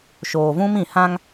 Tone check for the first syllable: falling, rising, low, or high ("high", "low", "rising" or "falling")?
low